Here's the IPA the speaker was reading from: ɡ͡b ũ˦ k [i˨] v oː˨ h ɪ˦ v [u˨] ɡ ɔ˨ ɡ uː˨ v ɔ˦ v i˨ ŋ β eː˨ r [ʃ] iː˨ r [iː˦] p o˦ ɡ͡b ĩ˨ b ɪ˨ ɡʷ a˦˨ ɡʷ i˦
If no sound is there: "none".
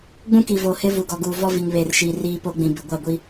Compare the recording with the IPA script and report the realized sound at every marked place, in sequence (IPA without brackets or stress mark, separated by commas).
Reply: i˨, u˨, ʃ, iː˦